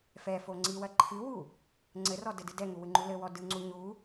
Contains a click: yes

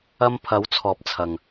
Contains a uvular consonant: no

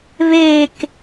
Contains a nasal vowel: no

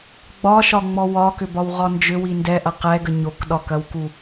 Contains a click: no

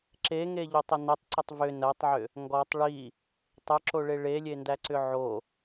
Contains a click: yes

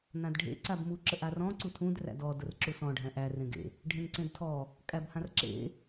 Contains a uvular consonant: no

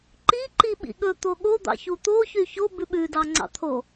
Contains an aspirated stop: yes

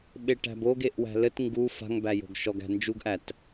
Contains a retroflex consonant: yes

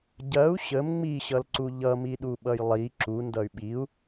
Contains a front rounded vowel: yes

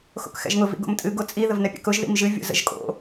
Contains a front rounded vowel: no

